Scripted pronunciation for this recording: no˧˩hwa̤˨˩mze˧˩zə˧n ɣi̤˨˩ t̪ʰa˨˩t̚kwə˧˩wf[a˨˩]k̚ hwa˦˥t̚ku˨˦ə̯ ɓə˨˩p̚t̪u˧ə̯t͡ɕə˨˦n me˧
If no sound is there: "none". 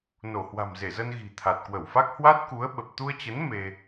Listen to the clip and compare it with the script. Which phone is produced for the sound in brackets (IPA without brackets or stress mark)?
a˦˥